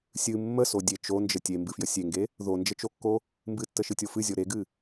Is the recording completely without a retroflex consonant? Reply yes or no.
yes